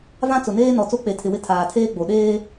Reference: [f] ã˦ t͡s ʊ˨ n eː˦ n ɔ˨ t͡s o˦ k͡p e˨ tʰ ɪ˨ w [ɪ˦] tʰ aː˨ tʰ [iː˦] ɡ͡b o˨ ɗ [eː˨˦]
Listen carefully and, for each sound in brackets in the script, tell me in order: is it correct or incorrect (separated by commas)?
incorrect, correct, incorrect, incorrect